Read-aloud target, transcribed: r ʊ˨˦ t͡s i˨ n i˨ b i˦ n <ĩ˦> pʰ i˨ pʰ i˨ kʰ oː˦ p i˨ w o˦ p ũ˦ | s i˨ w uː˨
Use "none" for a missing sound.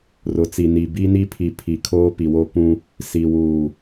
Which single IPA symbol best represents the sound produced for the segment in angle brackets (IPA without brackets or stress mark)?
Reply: i˦